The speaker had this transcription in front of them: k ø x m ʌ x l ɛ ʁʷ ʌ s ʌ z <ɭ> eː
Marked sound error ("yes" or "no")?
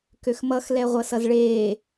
no